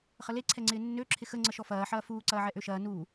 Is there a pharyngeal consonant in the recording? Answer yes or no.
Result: yes